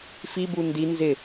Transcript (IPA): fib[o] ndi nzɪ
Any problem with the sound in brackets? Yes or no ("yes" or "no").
yes